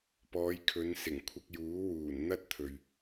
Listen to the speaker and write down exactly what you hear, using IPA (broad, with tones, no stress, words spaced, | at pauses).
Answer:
pɔː˨˧jkʰɵ˨˧n sɪ˨˩ŋkʷʰɐ˧k̚juː˨˥ wuː˨˩nn̪ɐ˥t̚t̪ʰɵ˨ɥ